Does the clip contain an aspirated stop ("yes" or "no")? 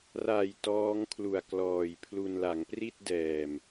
yes